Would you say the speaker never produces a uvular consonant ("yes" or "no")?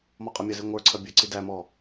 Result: no